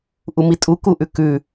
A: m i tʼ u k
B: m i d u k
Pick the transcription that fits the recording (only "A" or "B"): A